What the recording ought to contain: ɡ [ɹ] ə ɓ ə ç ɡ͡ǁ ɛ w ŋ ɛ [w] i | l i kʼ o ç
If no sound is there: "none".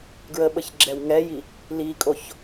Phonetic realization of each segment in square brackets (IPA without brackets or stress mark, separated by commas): ɹ, j